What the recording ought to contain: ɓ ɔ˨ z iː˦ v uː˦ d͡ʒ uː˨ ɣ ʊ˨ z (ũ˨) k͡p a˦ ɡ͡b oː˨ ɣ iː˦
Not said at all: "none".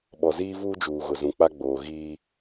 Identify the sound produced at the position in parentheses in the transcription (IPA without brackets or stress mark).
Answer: ũ˨